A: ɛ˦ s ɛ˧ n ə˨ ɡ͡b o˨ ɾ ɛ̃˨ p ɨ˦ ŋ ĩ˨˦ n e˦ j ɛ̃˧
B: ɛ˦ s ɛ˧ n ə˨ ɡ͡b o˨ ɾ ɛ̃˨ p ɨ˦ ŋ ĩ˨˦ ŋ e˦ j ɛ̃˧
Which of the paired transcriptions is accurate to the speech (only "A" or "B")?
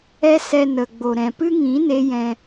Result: A